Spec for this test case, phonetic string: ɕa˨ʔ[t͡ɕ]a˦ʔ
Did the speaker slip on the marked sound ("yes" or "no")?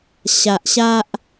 yes